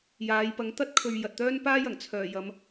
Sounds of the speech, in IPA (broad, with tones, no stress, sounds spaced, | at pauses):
j aː˨˧ j p ɐ˨˥ ŋ t̪ ɐ˥ t̚ kʰ ɵ˨ ɥ j ɐ˨ t̚ t̪ œː˥ n p aː˥ j ɐ˨˩ ŋ t͡sʰ œː˨˩ j ɐ˨˧ m